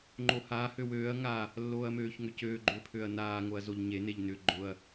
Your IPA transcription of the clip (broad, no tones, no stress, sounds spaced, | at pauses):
ŋ͡ǃ o h a h ø w øː ɐ̯ ŋ a | lː oː ɐ̯ m øː ç ŋ ʏ c øː ɡ͡ǃ ʏː pʰ ø ɐ̯ n aː ŋ o ɐ̯ z o ʎ ɲ e n e ʎ n ʏ ɡ͡ǃ ʊ ɐ̯